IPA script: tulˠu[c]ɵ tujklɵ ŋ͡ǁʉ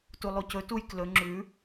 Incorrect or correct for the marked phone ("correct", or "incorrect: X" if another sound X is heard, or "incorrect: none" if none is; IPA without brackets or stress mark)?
correct